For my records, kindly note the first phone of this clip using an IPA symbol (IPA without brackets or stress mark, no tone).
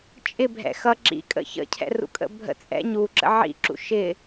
t͡ʃʼ